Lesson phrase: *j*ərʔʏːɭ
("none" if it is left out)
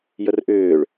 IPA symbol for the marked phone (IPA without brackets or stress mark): j